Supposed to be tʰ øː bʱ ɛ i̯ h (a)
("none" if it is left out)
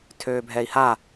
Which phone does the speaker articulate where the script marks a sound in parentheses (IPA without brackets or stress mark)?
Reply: a